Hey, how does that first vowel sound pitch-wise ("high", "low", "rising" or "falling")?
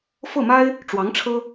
falling